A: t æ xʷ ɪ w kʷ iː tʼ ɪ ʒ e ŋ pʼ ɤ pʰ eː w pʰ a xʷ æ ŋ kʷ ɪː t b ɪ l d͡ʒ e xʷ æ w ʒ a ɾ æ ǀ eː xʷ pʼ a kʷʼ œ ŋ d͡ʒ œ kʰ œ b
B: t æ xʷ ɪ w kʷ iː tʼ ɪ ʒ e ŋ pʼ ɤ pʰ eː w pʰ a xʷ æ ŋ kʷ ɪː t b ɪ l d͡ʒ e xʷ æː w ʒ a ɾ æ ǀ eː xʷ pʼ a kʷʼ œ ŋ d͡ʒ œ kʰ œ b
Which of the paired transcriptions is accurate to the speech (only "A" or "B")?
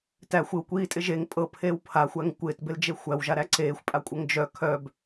A